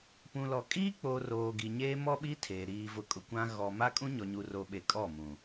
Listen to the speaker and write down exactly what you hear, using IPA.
p ũ˨ l ɔ˨ kʼ iː˦ k͡p oː˨ r oː˨ ɡ i˨ ɲ eː˦ m ɔ˦ ɓ i˦ tʰ eː˨ ɾ iː˨ v ʊ˨ kʼ ʊ˨ kʷ ã˦ ɣ ɔ˨ m a˦ kʼ ũ˦ ɲ ɔ˨ ɲ u˨ r o˨ ɓ e˨ kʼ ɔ˦˨ m ũ˨

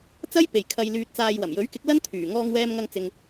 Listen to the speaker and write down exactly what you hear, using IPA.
t͡s ɐ˥ j p e˨ j kʰ ɐ˧ j l yː˧ t̚ t͡s aː˧ j w ɐ˨˩ m j ɵ˨˥ ɥ k ɪ˨˥ k̚ l ɐ˥ n t̪ʰ yː˨˩ ŋ ɔː˧ ŋ w ɛː˧ m ŋ ɐ˧ ŋ t͡s ɪ˨ ŋ

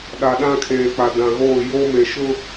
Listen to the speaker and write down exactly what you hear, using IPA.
ɗ a˨ ɗ ã˦ kʰ eː˨ k͡p a˨ d ã˨ ɣ oː˦˨ j o˦ m e˨ ʃ ʊ˦

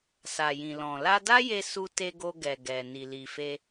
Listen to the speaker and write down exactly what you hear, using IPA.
s a˨ j ĩ˨ l ɔ̃˨ l a˧ d a˦ j e˧ s u˧ t e˧ ɡ o˧ ɡ ɛ˨ ɡ ɛ˨ n i˨ l i˨ f e˧

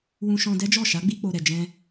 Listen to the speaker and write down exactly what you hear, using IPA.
w ũ˧ ʃ ɔ̃˧ d ɛ˦ d͡ʒ ɔ˦˨ ʃ a˨˦ ɡ͡b i˧ k͡p o˨ ɾ ɛ˨ d͡ʒ ɛ̃˧

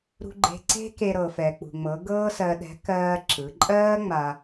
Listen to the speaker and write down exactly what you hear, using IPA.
ɾ ṳ˧ ɡ͡ǃ e̤˧ ǀ e̤˥ k e˧ ɾ ɤ˩ f ɛ˩ k͡p ṳ˩ ŋ͡m ɤ˩˧ ɡ ɤː˥ s ɜ˧ ɗ ɛ̤˧˥ k ɜː˧ ǁ ɯ˩˧ ǃʼ ɜː˥ ŋ͡m a˧

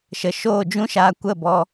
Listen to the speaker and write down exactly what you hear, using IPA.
ʃ ə˨ ʃ oː˦˨ d͡ʒ ũ˦ ʃ aː˧ kʷ ə˦˨ b ɔ˧

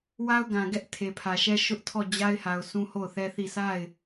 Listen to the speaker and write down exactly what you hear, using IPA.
w a˦ ʊ̯ ɡ ã˨ ɡ ɛ˦ ʔ tʰ e˨ pʰ ä˨ ʃ ɛ˦ ʃ ʊ˦ ʔ tʰ ɔ˦˨ d͡ʑ a˦ ɪ̯ h a˨ ʊ̯ s ũ˦ h o˦˨ ʊ̯ θ ɛ˦ θ i˦˨ s a˦˨ ɪ̯

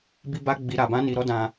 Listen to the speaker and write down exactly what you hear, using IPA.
b i˦ b a˦ ɡ͡b i˧ ɾ a˧ b ã˦ n i˧ ɾ ɔ˦ d ã˧

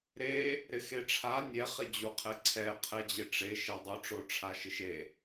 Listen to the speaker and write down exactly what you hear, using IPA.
ɾ e | ɾ ɪ x e ʈ͡ʂʰ a nʲ ɛ χ ɪ d͡ʑ u qʰ ɛ ǀʰ ɛ qʰ ɛ d͡ʑ ɪ ʈ͡ʂ e ʃ ɛ dˤ ʊ ʈ͡ʂ o ʈ͡ʂʰ a ʃ ɪ ʃ e

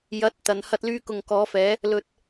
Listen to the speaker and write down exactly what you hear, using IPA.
j ɐ˨˥ t̚ t̪ ɐ˨˧ n h ɐ˥ t̚ l yː˥ k ʊ˨ ŋ k ɔː˨˧ f ɛː˨˧ | l ɵ˧ t̚

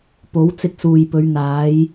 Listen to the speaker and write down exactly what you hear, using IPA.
p o˨˥ w t͡s ɪ˧ k̚ s uː˨ j p ɵ˨˧ ɥ n̪ aː˨˧ j

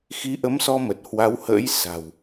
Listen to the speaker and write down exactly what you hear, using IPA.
x i˨˦ ʔ ə˨˦ m s ɔ˧ m ə˨˩ t̚ h w a˨˦ w h ə̰ː˧˥ j s a̤˨˩ w

